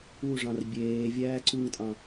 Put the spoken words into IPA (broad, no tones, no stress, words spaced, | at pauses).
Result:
uʐɑ̃r bʲeː vʲæːǀuŋtʼɑ̃